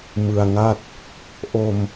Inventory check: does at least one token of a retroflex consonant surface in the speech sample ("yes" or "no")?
no